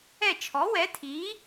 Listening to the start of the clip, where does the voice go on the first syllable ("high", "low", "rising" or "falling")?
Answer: falling